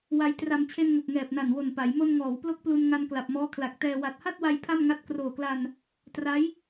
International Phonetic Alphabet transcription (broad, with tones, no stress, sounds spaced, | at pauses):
w a˧ j t r a˧ m t͡ɕʰ e˧ n ŋ o˨˩ k̚ ŋ ɛː˨˩ p̚ n a˨˩ n w o˨˩ n p a˩˦ j m o˧ n ŋ ɔː˩˦ w p l o˥˩ k̚ p l u˧ n ŋ a˧ n k l a˨˩ p̚ m ɔː˦˥ kʰ l a˨˩ k̚ t ɛː˧ w a˨˩ t̚ h a˥˩ t̚ w a˧ j pʰ a˥˩ m ŋ a˦˥ t̚ k r oː˨˩ k l a˧ n | t r a˦˥ j